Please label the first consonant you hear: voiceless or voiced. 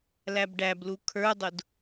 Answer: voiced